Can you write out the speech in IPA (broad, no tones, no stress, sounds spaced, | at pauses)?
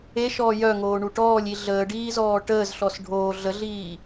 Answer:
e ʃ ɔː j œ ŋ oː ɳ u ʈ ɔː lʲ i ɮ əː ɖ iː z ɔː ʈ əː z ɬ ɔ s ɖʱ oː ɮ ə ɮ iː